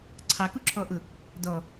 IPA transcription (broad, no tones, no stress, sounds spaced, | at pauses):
ǀʰ ɑ k u ǁʰ ɔ ʔ ʊ | d ɔ